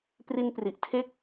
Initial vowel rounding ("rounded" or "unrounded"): unrounded